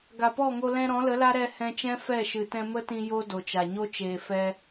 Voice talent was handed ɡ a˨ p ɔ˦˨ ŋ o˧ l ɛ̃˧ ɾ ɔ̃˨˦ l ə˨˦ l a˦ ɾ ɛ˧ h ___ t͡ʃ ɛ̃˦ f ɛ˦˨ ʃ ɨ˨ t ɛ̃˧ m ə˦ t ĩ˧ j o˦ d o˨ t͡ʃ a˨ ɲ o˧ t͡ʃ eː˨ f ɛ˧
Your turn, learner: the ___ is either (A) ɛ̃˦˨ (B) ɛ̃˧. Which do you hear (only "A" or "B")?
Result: B